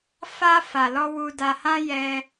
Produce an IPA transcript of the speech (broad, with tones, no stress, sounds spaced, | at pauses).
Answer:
f a˧ f a˨ l ɔ˧ w u˧ d a˧ h ã˦ j ɛ˧